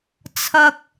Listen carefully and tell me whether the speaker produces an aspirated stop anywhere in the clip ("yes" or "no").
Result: yes